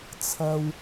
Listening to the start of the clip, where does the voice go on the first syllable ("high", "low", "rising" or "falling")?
low